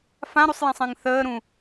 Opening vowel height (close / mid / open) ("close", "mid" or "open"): open